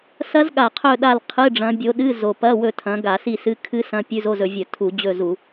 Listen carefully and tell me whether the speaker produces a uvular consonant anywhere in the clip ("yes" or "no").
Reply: yes